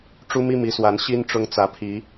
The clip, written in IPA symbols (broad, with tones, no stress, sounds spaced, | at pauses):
ʈ͡ʂ u˦ m i˦ m i˨˦ s w a˨˦ n ɕ i˦ n ʈ͡ʂ ʊ˦ ŋ t͡s ä˨˦ pʰ i˨˦